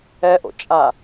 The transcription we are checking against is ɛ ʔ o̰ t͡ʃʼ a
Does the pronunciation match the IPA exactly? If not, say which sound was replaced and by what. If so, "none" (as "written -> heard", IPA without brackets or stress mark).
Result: none